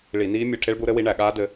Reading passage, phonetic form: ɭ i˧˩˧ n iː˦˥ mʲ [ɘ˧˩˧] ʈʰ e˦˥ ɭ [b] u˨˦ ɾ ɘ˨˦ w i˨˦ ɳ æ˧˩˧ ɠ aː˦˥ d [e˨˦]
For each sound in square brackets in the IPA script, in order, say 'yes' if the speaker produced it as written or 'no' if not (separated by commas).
yes, yes, no